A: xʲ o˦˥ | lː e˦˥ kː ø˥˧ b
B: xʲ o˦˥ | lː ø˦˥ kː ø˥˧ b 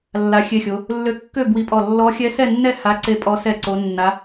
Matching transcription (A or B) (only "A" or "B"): B